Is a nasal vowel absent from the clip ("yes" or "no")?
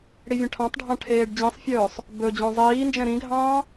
no